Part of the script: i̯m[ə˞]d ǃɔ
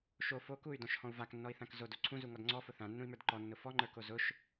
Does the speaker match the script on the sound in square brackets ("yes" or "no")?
yes